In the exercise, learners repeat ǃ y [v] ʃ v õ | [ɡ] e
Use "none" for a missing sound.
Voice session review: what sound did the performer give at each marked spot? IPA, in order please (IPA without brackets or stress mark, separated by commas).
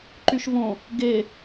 none, ɡ